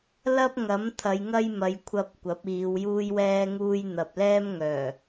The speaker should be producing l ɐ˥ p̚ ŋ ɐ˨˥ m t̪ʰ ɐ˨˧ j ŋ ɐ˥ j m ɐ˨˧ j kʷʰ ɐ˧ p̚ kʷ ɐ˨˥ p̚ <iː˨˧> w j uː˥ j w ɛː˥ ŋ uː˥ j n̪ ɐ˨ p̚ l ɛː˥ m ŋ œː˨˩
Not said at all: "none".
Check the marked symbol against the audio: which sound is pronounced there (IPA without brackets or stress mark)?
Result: iː˨˧